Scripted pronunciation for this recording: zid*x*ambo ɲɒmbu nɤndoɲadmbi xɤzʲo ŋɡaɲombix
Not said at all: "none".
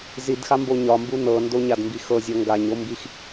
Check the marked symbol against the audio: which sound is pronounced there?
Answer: x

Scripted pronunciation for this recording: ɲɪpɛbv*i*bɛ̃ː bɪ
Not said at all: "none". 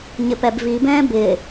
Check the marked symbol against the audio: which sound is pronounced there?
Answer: i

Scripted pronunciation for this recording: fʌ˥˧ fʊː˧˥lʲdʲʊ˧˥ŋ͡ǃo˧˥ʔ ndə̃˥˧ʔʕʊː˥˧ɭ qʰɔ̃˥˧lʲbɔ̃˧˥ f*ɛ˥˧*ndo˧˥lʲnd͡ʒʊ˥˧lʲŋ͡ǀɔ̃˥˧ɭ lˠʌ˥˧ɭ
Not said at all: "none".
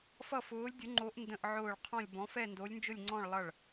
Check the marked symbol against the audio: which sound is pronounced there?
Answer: ɛ˥˧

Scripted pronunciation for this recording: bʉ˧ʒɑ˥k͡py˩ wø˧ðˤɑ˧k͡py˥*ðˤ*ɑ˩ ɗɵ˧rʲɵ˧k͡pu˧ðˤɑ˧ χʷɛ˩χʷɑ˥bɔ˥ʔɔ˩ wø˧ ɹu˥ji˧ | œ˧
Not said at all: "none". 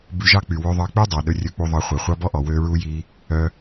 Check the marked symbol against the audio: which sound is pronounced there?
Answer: dˤ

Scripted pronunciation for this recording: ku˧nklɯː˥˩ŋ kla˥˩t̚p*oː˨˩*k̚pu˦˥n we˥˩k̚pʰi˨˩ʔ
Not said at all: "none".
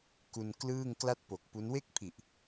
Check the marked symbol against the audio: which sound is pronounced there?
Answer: o˨˩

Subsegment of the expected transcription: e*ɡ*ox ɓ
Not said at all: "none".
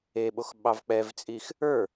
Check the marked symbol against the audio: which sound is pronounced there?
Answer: ɓ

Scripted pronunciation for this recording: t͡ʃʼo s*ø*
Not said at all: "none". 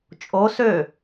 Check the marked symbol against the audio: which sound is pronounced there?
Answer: ø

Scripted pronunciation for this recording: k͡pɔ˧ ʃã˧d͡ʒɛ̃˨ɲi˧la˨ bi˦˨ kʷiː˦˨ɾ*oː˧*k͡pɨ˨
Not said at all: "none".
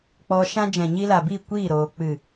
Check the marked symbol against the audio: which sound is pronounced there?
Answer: oː˨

